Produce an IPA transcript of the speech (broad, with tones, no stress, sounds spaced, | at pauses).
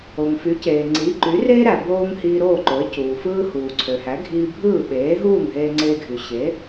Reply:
o˩ ŋ f y˩˥ c eː˩ ŋ͡ǀ iː˩˥ ǃ yː˩˥ r eː˥ ɾ æ˩ b oː˧ ŋ h iː˧ ɾ oː˥˩ ǃ o˩˥ ɪ̯ c uː˩ f ɯː˥ h uː˩ ǀʰ ø˩ h æ˩˥ ɡʱ iː˧ bʱ ɯː˥˩ ɓ eː˩˥ ɦ uː˥˩ ŋ ɦ eː˧ ŋ͡ǀ eː˧ ɡʱ y˩ ɕ e˩˥